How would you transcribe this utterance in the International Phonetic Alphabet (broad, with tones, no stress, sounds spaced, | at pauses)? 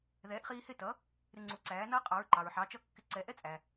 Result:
ð ɛː˩˥ ʔ χ iː˧ h ɪ˥˩ t ʌ˩˥ | ɾ ɪ˧ ŋ͡ǀ u˩˥ ǀ æː˩˥ n ʌː˥ qʼ ɑ˩˥ ɹ ǃ ɑ˩ ɹ ħ ɑ˩˥ t͡ʃ ʌ˥˩ kː ɪ˧ ǀ ɛ˩˥ ʔ ɛ˥ t͡sʼ æ˩